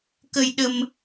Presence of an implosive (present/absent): present